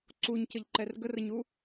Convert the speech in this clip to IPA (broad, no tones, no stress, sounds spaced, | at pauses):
ǀ u ɲ c ə ʎ ǃ ɛ r ɡ ə r ə ɲ u